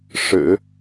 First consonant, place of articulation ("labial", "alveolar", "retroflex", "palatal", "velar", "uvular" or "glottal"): retroflex